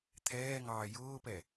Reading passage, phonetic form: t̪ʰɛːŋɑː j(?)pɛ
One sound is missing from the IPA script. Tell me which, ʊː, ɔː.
ʊː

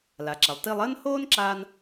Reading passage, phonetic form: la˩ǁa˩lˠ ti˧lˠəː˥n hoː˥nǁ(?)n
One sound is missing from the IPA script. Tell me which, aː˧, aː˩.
aː˧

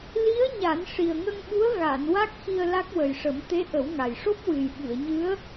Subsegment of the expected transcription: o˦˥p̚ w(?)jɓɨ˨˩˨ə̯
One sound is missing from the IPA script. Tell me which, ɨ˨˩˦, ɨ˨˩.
ɨ˨˩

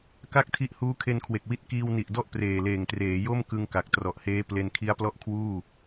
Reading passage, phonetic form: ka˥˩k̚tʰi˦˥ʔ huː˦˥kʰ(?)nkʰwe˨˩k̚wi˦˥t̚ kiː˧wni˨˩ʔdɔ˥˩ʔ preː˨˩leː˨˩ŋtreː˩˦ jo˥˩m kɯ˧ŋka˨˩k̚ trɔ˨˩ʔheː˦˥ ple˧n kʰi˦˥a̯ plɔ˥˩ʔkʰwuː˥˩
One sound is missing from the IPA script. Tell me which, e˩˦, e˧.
e˧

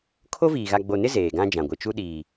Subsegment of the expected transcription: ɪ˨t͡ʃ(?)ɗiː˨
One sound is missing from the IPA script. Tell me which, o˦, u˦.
u˦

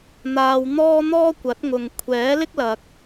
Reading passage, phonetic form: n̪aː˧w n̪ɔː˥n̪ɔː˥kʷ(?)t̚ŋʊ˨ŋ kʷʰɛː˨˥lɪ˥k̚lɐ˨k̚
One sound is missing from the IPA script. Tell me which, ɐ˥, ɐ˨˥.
ɐ˨˥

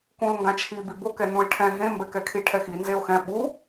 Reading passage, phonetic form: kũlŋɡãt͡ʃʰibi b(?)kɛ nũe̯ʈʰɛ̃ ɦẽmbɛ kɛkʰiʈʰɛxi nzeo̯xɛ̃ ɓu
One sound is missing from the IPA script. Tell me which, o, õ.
o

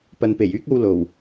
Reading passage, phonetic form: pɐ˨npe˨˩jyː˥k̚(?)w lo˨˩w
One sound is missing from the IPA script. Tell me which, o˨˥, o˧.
o˧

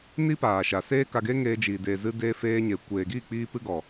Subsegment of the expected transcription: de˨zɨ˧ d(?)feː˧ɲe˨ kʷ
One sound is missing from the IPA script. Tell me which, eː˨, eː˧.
eː˧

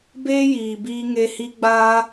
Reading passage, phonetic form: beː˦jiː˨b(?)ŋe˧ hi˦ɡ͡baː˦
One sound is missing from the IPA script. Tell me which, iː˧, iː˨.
iː˧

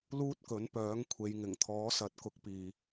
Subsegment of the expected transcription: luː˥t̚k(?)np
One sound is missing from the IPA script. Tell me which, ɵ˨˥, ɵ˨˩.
ɵ˨˥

